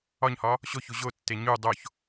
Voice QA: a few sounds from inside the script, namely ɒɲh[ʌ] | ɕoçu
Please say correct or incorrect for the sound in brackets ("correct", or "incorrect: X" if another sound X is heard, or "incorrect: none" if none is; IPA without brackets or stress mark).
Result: incorrect: ɒ